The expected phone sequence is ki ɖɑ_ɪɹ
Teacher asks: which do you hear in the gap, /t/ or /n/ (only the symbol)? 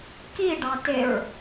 t